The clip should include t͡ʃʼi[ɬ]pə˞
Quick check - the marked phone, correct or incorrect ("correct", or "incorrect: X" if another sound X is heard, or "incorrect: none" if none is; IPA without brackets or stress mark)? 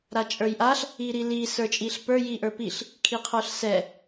correct